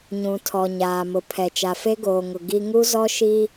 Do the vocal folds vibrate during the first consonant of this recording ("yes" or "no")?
yes